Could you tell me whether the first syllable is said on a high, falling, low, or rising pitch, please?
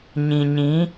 low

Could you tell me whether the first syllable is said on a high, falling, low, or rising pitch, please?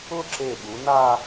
falling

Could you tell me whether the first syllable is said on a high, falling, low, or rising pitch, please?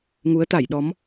rising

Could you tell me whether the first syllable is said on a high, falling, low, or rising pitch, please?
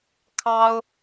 high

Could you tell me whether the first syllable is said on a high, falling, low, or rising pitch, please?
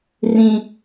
high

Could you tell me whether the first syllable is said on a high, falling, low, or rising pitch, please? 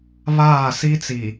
falling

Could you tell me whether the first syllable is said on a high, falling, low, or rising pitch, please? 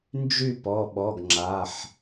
falling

